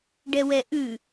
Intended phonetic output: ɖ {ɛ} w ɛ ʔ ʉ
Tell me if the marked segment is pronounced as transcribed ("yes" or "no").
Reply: yes